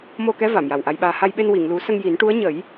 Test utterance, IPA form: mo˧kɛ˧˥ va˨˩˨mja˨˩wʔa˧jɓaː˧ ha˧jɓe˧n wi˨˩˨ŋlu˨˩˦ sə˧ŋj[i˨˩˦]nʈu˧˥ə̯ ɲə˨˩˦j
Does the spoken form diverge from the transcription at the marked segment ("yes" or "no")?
no